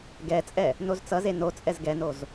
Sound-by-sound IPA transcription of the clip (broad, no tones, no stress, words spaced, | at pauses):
ɡɛt͡sʼɛ | nozt͡sʌze not͡sʼɛz ɡɛnoz